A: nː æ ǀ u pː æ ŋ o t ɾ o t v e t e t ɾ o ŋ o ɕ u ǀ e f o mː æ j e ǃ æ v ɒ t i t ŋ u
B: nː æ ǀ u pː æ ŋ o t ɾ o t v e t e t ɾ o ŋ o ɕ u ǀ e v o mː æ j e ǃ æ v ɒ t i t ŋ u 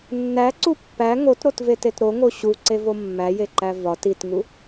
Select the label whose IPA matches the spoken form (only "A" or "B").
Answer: B